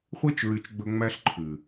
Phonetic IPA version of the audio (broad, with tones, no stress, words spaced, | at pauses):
χʷe˧t͡ʃɹy˨t͡ʃ ɡ͡bɵ˧ ŋ͡mæ˦ɬǃʰʉ˨